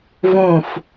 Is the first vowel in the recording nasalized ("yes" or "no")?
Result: yes